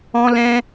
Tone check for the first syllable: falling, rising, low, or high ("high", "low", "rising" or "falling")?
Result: high